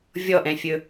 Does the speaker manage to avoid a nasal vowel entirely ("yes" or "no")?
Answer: no